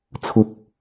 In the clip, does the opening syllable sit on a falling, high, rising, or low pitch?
low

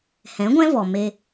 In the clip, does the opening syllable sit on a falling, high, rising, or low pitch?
rising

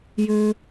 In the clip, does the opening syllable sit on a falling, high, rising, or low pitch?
high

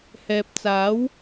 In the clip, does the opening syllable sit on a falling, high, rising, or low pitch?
low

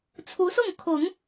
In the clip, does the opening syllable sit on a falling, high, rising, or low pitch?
rising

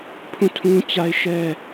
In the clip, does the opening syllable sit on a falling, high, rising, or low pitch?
falling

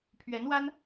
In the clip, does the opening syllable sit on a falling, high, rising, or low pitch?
rising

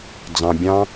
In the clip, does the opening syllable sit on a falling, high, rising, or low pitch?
low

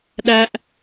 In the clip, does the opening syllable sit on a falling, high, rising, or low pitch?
high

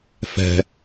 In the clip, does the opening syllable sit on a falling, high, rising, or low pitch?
low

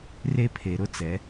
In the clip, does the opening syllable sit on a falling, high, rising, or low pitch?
high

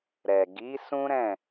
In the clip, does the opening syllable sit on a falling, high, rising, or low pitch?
low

